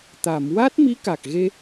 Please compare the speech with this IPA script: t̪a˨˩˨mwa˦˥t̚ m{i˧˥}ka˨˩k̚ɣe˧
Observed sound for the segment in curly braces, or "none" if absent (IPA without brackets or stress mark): i˧˥